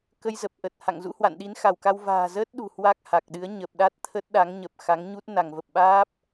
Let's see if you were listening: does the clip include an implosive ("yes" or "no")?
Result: yes